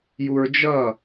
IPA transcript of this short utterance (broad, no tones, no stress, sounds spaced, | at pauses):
j u ɹ d͡ʒ ʌ